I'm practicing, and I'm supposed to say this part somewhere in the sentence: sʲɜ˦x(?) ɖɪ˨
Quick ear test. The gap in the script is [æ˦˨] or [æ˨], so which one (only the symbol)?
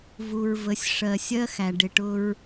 æ˨